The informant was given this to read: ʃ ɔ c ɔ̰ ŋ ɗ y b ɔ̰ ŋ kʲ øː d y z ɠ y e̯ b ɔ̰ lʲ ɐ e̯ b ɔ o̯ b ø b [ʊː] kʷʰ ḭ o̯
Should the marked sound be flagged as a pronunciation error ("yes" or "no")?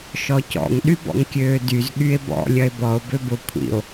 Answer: yes